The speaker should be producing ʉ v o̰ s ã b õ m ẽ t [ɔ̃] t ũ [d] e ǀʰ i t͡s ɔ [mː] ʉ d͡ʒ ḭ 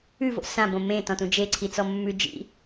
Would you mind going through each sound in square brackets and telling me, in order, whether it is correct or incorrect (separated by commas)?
correct, incorrect, correct